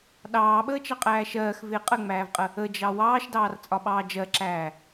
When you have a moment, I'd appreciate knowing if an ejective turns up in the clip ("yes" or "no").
yes